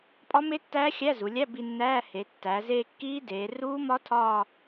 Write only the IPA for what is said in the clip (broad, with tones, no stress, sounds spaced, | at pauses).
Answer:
pʼ ɒ˦˥ m e˦˥ tː æː˦˥ xʲ æ˧˥˧ z u˩˧ lʲ æ˧˥˧ b i˦˨ nː æː˧˥˧ h e˩˧ tː æ˩˧ z e˦˨ kː iː˦˥ d eː˩˧ r uː˦˥ m ɒ˦˥ tʰ ɒː˦˨